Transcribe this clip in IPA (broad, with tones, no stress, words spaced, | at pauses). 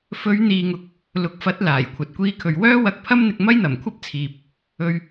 fɵ˨˧ɥn̪iː˨ŋʊ˨k̚ | lʊ˨˥k̚ fɐ˨˥t̚ laː˨˩jkʷʰɐ˨t̚ kʷiː˧kʰɵ˨ɥ wœː˥wɐ˧k̚pʰɐ˥mn̪ɪ˧k̚ mɐ˥jn̪ɐ˨˩mkʷʰɐ˥p̚t͡sʰiː˨p̚ | ɵ˧ɥ